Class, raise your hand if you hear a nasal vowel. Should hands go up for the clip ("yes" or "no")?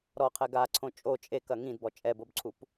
yes